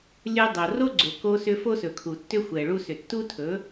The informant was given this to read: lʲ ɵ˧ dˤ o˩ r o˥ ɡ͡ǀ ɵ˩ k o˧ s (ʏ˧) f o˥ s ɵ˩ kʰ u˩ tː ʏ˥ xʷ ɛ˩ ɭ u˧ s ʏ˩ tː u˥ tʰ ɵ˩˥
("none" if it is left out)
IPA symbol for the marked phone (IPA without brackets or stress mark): ʏ˧